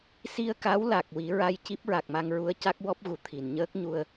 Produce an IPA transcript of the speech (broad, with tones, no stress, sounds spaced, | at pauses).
s i˧ ə̯ k a˧˥ w l a˨˩ k̚ w i˨˩˦ ɹ a˧ j c i˦˥ p̚ ɹ a˨˩ k̚ m a˧ ŋ ɹ u˧˥ ə̯ c a˦˥ k̚ w ɔ˦˥ p̚ ɣ u˨˩ t̪ʰ i˨˩˨ n ɲ əː˦˥ k̚ ɲ u˧ ə̯